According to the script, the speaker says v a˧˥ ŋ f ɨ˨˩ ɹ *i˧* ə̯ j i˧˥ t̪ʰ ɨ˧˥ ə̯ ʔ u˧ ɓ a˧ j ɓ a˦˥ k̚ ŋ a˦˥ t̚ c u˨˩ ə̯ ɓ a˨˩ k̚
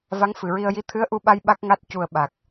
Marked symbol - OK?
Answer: yes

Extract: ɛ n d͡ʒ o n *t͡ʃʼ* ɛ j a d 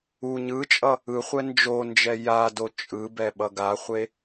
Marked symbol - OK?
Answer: no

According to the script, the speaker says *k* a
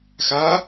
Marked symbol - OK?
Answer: no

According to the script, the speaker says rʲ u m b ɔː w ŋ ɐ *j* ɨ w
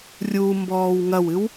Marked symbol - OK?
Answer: no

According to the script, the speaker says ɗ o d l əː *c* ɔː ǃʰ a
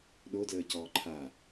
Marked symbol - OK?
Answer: yes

